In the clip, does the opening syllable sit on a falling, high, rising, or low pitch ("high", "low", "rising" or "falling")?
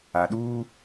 low